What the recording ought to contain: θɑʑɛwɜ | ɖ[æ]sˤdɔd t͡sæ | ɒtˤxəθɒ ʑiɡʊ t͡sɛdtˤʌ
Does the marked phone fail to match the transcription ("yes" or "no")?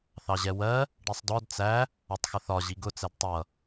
yes